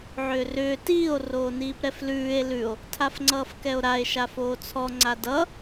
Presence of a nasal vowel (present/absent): absent